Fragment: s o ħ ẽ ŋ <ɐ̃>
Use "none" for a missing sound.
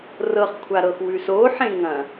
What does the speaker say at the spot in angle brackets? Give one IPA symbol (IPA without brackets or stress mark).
ɐ̃